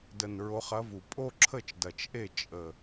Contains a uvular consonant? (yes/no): yes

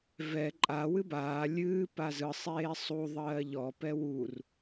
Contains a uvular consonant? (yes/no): no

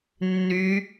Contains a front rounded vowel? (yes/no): yes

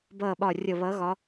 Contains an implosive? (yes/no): yes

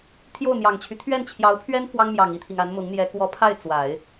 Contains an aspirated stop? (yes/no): yes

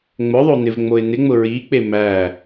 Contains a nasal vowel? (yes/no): no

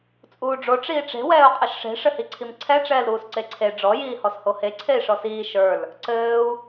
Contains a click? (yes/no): yes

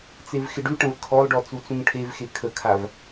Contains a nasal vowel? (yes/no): yes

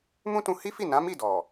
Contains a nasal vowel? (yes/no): yes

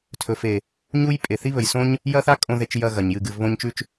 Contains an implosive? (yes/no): no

